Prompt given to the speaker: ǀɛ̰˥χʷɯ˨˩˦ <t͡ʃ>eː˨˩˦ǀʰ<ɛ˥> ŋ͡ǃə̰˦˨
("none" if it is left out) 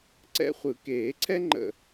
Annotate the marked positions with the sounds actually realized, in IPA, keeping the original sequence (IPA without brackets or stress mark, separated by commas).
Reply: k, ɛ˥